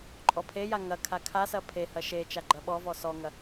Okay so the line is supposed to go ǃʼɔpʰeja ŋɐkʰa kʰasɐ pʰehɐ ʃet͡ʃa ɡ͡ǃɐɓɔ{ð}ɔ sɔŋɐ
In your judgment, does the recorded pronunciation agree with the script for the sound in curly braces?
no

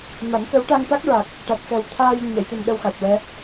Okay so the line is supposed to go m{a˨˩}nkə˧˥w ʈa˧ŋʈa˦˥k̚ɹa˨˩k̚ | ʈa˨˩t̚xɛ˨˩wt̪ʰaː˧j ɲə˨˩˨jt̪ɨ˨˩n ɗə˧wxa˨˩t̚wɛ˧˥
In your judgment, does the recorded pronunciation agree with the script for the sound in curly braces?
no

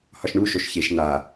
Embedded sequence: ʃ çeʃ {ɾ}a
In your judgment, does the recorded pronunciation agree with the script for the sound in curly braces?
no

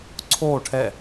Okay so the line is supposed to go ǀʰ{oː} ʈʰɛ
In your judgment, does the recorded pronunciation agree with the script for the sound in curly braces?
yes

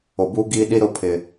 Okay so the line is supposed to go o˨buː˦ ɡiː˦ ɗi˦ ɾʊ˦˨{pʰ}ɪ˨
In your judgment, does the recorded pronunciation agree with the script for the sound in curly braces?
yes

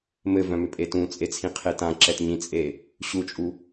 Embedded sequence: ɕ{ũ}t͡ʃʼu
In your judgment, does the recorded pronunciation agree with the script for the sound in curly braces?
no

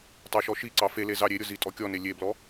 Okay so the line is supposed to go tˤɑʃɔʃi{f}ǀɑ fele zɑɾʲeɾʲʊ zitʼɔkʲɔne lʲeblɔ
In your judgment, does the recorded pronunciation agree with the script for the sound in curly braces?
no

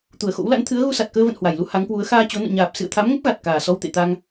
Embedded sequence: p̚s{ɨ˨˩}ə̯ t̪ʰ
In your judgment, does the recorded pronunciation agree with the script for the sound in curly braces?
no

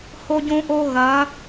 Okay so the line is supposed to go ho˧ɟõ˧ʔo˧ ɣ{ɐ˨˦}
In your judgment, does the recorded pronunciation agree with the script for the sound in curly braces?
yes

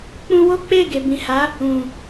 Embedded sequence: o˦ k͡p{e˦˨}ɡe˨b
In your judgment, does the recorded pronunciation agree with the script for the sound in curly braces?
yes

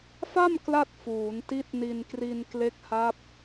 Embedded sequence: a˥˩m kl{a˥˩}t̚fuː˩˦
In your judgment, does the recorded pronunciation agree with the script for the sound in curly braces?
yes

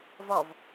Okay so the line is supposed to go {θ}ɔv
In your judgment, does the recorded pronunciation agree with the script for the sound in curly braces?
no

